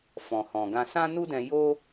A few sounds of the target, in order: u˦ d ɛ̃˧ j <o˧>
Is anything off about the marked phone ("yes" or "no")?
yes